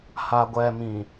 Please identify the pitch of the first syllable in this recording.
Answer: low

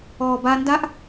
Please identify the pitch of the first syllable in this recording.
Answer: low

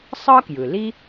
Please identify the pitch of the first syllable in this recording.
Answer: high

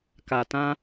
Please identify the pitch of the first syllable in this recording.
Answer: low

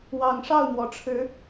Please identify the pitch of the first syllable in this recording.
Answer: low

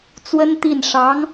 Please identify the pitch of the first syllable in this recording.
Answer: high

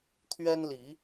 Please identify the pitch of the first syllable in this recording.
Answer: high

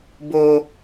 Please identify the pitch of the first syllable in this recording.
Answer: high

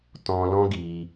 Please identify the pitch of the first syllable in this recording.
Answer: high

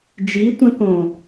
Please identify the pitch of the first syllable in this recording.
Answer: rising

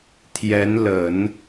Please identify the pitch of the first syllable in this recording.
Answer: rising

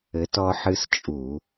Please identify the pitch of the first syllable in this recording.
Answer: rising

